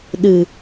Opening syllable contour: low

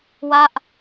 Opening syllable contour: falling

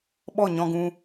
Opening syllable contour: falling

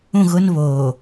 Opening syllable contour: falling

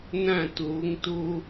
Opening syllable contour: falling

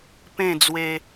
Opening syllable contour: falling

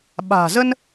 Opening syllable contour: low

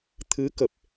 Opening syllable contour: rising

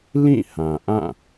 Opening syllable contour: falling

